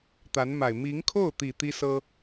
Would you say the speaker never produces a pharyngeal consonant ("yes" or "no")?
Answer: yes